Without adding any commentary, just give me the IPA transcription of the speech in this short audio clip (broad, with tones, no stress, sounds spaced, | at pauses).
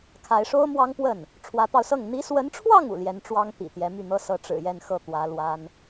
kʰ a˧˥ ɪ̯ ʂ o˥ ʊ̯ m w ɑ˥ ŋ p w ə˥˩ n | ʈ͡ʂʰ w ä˧˥ t̪ ɑ˧ ʊ̯ s ɤ˥˩ ŋ n̪ i˧˥ s w ə˧˥ n ʈ͡ʂʰ w ɑ˥˩ ŋ ṵ˨˩ l j ɛ˧˥ n ʈ͡ʂ w ɑ˥ ŋ t̪ ḭ˨˩ t̪ j ɛ˧˥ m y˥˩ n̪ ɤ˥ s ɤ˧˥ ʈ͡ʂ ɻ̩˨˩ j ɛ˥˧ n x ɤ˥˩ t̪ w ä˧˥ l w a˥ n